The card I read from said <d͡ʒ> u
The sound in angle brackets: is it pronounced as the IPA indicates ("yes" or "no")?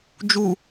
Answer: yes